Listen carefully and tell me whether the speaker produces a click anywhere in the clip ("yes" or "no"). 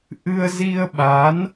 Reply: no